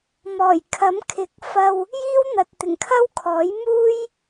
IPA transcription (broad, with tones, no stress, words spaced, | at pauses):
mɔː˨˩jkʰɐ˨˥mkʰɪ˨˥k̚ fɐ˧w | jiː˥wn̪ɐ˨t̚t̪ɪ˨˩ŋkʰɐ˥w kʰɔː˨˥j muː˥j